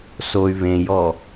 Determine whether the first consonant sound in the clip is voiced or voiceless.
voiceless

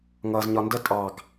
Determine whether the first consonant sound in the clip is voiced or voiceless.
voiced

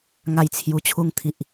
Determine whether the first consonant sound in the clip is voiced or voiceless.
voiced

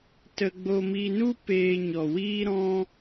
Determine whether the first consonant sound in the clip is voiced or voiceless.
voiceless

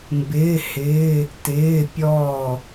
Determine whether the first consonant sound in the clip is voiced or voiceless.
voiced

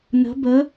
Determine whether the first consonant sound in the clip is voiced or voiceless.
voiced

